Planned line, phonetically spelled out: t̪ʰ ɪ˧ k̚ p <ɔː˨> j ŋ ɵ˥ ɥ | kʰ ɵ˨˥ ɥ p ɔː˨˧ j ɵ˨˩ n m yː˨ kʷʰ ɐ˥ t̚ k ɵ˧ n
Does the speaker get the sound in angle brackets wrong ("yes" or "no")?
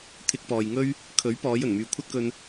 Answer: no